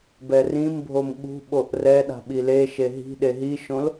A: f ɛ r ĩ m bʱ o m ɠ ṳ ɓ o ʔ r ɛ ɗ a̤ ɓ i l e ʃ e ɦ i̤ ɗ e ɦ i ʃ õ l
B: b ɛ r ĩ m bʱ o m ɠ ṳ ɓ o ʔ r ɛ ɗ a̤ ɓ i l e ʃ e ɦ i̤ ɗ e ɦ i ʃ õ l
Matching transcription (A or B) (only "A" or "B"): B